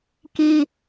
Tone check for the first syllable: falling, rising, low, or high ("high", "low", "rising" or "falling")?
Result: high